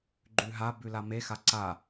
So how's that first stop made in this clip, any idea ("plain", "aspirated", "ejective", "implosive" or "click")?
click